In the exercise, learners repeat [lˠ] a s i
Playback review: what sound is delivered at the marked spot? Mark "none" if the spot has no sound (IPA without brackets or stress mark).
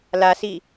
l